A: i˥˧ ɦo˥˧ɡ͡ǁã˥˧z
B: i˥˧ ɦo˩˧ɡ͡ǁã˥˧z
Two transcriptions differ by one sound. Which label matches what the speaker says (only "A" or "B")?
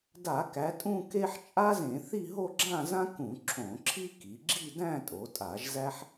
A